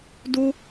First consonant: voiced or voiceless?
voiced